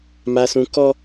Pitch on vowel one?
high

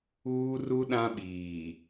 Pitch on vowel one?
high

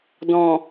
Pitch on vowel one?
low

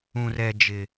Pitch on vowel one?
high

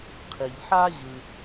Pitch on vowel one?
low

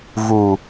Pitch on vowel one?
low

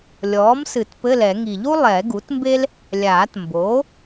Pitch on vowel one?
rising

